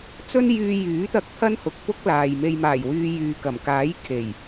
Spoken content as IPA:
t͡s ɵ˥ n j yː˧ j yː˨˥ t̪ ɐ˧ k̚ pʰ ɐ˥ n h ʊ˨ k̚ p ʊ˥ k̚ l aː˨ j m e˧ j m aː˨˩ j w yː˨ j yː˨ k ɐ˨˩ m k aː˨˥ j kʰ e˨˩ j

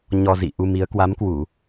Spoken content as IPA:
ɲ ɔ˧ z ḭ˧˨ ʔ u˧ m i˨˦ ə̯ k w a˨˦ m k w u˧˩˨

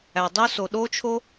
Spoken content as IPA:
æ˩ dˤ o˥ s o˩ ɗ o˥ t͡ʃʰ o˥

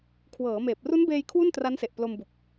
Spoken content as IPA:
kʰ w ɤː˩˦ m eː˨˩ p̚ r u˦˥ n b eː˧ j kʰ w u˥˩ n t r a˦˥ n s e˨˩ ʔ p l o˧ m b u˨˩ k̚

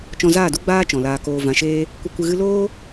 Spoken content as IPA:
t͡ʃ ɔ̃˧ z aː˦˨ d u˦ ɡ͡b aː˦ t͡ʃ ɔ̃˨ l aː˧ k oː˧ v ã˨ ʃ eː˧ | kʷ ə˧ kʷ ɨ˧ ɣ ɨ˦ l oː˦

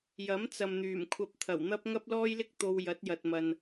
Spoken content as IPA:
j ɐ˨˥ m t͡s ɐ˨ m n̪ yː˨˩ m kʷʰ ɐ˧ p̚ t̪ʰ ɐ˨˩ w n̪ ɐ˥ p̚ ŋ ɐ˥ p̚ l ɔː˥ j l ɪ˥ k̚ t̪ o˧ w j ɐ˨˥ t̚ j ɐ˨ t̚ m ɐ˨ n

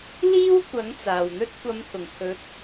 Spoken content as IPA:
l iː˥ w kʷ ɐ˨˥ ŋ t͡s aː˨ w n̪ ɵ˥ t̚ kʷ ɐ˨˧ m t̪ʰ ʊ˨˩ ŋ kʰ ɵ˨˥ t̚

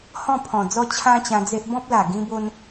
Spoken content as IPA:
h ɔ̃˥˧ pʰ ɔ̃˨˩ d͡z ɔ˦ t͡ɕʰ ã˦ t͡ɕ ã˧ d͡z e˦ ʔ b ɔ̃˦ p̚ l a˨˩ ɡ ĩ˦ b o˦ n

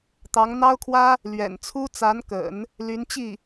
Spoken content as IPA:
t̪ ɑ˧˥ ŋ n̪ ɑ˥ ʊ̯ kʰ w ä˥ | l ɥ ɛ̰˨˩ n t͡sʰ u˥ t͡s a˧˥ n k ə̰˨˩˦ n | l y˧˥ n t͡ɕ i˥˩

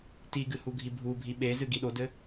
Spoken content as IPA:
t i ɡ ɨ h u ɡʱ i bʱ u bʱ i ɓ e z ɨ ɡ i ɗ o d ɘ

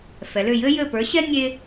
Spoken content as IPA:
f ɛ˩˧ l ʏ˦˨ j ɘ˥ j ɘ˦˨ p ə˞˨˥ ɕ ɛ˥ nʲ e˥

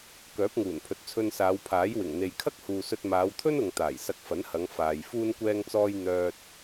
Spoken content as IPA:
k œː˨˥ p̚ ŋ uː˨˩ n pʰ ɵ˨ t̚ t͡sʰ ɵ˧ n s aː˨˧ w pʰ aː˨˥ j w ɪ˨˩ ŋ n̪ e˨ j kʰ ɐ˥ k̚ h uː˨ s ɵ˧ t̚ m aː˨˧ w t̪ʰ ɵ˥ n ʊ˨ ŋ t̪ aː˨˩ j s ɐ˧ k̚ f ɐ˨˥ n h ɐ˨˧ ŋ f aː˨ j f uː˥ n kʷ ɛː˥ ŋ t͡s ɔː˥ j n̪ œː˥ t̚

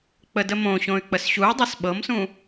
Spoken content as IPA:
k͡p ə d ə m õ ɕ õ y̯ k͡p ə s ɕ u y̯ dˤ ɛ s ɓ ɤ m s ũ

